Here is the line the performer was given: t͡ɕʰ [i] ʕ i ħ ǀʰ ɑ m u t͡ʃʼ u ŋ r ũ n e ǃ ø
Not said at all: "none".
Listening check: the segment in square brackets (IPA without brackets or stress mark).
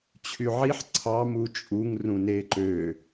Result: y